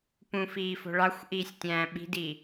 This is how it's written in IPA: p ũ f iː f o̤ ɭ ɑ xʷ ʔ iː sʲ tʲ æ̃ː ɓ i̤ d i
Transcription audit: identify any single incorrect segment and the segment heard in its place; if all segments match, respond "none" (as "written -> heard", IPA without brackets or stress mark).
none